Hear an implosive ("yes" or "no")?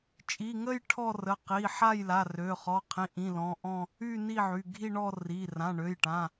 no